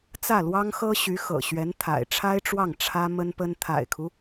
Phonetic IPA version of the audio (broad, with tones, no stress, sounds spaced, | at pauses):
t͡s ä˥˩ l w ɑ˥ ŋ x ɤ˥ ɕ y˧˥ x ɤ̰˨˩ ɕ ɥ ɛ˧˥ n t̪ʰ a̰˨˩ ɪ̯ ʈ͡ʂʰ a˥ ɪ̯ ʈ͡ʂ w ɑ˥˩ ŋ ʈ͡ʂʰ ä˥ m ə˥ n p ə˥ n t̪ʰ a̰˨˩ ɪ̯ kʰ u˦